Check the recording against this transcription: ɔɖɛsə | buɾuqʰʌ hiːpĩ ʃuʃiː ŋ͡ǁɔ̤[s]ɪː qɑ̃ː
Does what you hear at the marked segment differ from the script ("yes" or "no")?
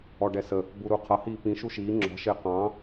yes